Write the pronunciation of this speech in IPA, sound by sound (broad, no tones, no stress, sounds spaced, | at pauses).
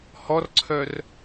h ɔ r ǀʰ œ r